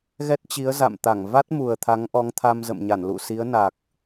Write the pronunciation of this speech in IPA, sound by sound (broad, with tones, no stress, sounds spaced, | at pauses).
ɣ ɛ˦˥ t̚ t͡ɕ i˨˦ ə̯ z a̰˧˨ m t̪ a˧˩ ŋ v a˦˥ t̚ m u˨˩ ə̯ t̪ʰ a˨˦ ŋ ʔ ɔ˨˦ ŋ t̪ʰ a˧ m z ə̰˧˨ m ɲ a˧˩ n l ṵ˧˨ s i˨˦ ə̯ n a˨˩ k̚